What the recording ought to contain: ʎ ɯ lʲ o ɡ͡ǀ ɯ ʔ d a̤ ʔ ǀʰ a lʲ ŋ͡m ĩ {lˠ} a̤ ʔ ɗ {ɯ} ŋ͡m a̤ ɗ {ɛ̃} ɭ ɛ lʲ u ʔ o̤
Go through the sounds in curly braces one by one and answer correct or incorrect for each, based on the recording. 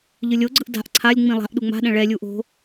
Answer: correct, incorrect, correct

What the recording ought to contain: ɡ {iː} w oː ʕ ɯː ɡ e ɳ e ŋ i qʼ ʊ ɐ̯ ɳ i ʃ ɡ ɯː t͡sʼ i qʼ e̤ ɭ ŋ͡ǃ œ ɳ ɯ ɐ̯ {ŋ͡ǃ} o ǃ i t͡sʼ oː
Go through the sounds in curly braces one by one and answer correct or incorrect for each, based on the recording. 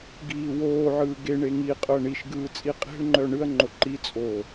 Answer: correct, correct

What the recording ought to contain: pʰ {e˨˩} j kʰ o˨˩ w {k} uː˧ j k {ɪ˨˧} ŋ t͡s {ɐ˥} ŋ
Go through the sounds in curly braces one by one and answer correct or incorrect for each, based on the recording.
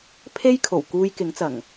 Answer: incorrect, correct, incorrect, incorrect

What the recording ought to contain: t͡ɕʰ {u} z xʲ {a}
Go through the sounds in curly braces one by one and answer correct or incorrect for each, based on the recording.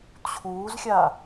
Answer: incorrect, correct

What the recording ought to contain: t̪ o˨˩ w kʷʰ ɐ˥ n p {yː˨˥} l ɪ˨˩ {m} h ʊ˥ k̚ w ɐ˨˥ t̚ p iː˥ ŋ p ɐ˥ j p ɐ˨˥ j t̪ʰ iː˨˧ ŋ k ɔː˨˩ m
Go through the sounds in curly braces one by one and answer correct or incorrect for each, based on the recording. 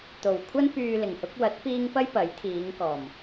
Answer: incorrect, incorrect

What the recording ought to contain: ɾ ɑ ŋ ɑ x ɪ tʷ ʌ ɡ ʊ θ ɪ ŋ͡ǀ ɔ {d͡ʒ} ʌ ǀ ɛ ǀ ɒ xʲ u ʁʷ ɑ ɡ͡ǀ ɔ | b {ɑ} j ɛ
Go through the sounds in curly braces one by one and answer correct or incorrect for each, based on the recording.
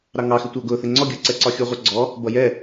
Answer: incorrect, incorrect

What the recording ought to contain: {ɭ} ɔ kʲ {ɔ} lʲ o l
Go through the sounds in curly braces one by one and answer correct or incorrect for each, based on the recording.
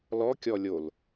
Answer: incorrect, correct

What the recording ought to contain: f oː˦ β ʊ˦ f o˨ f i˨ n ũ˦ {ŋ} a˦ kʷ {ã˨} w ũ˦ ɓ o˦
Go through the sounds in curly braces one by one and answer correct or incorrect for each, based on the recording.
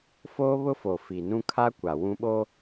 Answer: incorrect, incorrect

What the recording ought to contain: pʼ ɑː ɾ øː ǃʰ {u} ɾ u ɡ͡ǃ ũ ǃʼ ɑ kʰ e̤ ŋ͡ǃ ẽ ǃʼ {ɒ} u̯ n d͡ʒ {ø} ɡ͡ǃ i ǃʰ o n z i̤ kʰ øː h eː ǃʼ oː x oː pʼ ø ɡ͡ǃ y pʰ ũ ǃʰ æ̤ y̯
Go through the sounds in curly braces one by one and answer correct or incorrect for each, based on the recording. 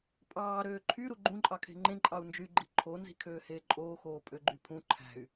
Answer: incorrect, incorrect, incorrect

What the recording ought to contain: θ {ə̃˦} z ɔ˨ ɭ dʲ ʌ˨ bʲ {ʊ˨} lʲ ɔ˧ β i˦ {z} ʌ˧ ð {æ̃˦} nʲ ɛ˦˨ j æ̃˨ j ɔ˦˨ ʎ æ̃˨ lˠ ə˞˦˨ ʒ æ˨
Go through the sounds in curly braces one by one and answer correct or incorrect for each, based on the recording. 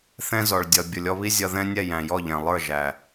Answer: incorrect, correct, incorrect, incorrect

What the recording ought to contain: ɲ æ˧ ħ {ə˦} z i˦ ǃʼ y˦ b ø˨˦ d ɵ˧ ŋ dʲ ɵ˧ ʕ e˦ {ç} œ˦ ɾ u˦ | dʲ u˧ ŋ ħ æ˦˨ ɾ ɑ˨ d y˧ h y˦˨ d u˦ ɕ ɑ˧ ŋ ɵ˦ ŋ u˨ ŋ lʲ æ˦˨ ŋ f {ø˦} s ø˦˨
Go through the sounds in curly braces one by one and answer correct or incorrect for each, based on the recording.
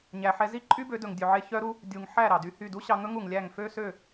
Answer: incorrect, correct, correct

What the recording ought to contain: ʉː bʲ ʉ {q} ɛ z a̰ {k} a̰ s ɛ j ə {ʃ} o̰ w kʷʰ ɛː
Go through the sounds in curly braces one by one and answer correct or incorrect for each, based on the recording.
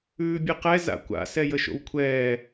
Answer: correct, incorrect, correct

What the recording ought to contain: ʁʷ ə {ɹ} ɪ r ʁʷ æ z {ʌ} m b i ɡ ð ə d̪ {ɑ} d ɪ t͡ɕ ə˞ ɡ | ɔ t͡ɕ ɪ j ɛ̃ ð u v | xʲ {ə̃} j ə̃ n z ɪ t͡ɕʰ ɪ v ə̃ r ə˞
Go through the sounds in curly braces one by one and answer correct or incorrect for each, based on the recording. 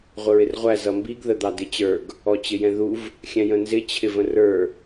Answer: correct, correct, correct, incorrect

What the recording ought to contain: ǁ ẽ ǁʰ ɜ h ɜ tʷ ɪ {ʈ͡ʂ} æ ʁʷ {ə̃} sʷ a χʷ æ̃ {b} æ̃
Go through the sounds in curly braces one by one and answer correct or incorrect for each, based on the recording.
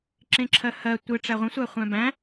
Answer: correct, correct, correct

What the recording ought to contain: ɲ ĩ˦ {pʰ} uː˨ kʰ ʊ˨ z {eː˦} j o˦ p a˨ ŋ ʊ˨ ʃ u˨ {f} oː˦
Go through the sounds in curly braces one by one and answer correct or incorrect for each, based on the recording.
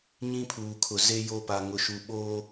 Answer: correct, incorrect, incorrect

